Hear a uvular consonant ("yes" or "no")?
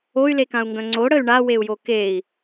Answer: no